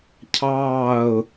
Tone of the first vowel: falling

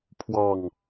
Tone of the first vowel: falling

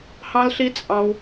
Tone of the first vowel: high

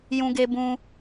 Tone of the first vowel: high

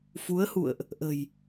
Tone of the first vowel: rising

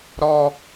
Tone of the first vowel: high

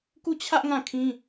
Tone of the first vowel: falling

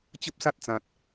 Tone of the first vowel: high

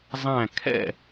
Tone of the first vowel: falling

